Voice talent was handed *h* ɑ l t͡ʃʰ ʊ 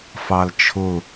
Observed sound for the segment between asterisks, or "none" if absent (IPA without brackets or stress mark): f